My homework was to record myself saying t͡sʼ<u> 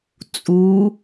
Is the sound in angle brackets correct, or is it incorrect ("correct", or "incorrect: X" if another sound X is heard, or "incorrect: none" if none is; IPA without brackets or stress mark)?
correct